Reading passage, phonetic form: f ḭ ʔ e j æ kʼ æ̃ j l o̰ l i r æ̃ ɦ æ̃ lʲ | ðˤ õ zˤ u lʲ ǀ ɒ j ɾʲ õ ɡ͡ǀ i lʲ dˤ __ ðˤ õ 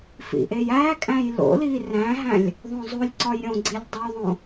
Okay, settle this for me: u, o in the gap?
o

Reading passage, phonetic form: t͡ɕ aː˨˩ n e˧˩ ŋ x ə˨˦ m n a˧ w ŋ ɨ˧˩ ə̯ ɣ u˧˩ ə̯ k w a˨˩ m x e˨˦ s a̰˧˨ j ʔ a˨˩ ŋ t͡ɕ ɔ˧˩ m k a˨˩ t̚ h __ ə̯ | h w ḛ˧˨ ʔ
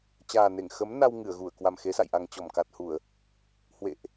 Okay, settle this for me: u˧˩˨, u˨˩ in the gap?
u˧˩˨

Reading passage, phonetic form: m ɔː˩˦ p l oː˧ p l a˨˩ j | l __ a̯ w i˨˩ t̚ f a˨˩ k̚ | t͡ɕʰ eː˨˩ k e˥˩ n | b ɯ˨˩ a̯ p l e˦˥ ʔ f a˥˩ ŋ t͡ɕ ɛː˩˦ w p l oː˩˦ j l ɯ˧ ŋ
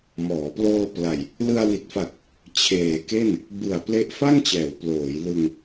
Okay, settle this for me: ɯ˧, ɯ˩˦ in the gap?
ɯ˧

